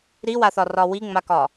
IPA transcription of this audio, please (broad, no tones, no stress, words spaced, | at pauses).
ɾiwaθɒrɒ wiŋ͡makɒ